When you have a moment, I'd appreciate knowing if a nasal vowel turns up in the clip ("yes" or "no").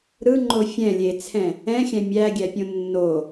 yes